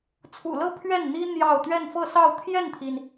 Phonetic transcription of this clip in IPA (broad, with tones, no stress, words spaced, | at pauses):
t͡sʰṵ˨˩lɤ˥˧ pʰɥɛ˥˩n n̪i˥ n̪jɑ˥˧ʊ̯ t̪ɥɛ˥˧nfɤ˥˧sɑ˥˧ʊ̯ t̪ʰjɛ˥˩nt̪ʰi˩n